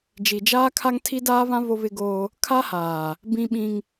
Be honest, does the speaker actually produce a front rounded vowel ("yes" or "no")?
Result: no